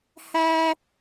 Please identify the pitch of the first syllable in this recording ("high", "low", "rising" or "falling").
high